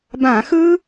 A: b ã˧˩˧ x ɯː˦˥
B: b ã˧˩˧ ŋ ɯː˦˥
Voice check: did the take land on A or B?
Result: A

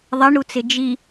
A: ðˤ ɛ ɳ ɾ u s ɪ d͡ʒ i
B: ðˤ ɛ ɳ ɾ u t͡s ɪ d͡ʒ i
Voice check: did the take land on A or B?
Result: B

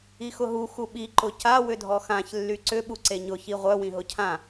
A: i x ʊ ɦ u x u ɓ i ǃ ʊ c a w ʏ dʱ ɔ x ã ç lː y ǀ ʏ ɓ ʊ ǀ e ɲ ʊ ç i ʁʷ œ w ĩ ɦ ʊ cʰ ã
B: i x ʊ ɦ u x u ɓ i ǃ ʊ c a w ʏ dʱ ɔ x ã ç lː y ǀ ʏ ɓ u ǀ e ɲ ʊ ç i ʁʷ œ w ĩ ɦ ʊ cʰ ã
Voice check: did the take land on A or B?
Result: B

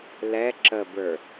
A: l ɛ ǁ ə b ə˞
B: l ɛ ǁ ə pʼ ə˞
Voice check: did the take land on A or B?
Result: A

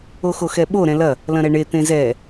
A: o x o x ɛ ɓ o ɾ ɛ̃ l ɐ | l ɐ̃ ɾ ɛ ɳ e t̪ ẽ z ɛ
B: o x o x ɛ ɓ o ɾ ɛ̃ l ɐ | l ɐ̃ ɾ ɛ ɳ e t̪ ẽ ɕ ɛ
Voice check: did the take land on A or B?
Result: A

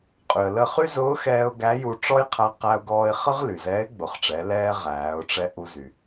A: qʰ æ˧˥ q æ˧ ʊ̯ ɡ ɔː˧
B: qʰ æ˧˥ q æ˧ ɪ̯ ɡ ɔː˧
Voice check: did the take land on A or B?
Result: A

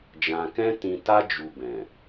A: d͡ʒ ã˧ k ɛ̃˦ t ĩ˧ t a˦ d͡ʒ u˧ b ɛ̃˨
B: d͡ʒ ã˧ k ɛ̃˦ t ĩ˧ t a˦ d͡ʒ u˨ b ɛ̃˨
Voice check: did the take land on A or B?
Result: A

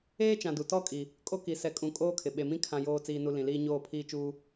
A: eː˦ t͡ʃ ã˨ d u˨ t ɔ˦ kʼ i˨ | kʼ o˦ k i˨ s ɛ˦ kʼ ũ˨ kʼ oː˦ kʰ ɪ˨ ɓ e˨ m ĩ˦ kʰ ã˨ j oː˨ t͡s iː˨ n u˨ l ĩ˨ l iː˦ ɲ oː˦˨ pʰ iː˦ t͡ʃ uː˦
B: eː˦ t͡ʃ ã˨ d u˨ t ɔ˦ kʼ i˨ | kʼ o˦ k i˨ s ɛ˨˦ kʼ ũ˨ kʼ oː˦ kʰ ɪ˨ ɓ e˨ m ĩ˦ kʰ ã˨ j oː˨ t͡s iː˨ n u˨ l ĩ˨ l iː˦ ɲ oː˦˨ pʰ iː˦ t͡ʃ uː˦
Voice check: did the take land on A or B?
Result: B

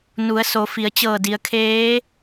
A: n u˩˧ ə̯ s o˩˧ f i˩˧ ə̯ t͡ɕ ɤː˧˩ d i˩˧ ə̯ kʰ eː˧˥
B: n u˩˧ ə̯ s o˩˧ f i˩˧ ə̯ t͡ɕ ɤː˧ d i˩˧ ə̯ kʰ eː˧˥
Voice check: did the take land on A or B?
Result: A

